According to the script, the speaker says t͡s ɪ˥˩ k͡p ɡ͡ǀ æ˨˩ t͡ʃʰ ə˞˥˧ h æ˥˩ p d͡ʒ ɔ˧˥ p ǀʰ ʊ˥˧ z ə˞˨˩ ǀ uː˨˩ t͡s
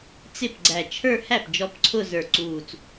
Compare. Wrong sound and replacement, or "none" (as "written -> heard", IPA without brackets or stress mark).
k͡p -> p